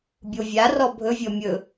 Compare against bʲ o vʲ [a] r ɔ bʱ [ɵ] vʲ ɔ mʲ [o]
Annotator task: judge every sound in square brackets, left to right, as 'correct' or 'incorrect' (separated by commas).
correct, correct, incorrect